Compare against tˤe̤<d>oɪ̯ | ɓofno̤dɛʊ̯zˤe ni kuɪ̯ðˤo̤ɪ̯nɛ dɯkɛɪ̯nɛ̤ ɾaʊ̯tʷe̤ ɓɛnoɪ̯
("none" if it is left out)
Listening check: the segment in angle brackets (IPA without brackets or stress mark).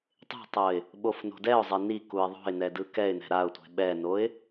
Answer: tˤ